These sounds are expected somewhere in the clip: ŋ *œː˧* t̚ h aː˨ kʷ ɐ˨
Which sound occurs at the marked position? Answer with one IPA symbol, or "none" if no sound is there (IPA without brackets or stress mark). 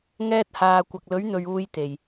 ɛː˧